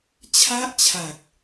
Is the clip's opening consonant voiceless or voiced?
voiceless